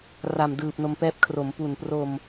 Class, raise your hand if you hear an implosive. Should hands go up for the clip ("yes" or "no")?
no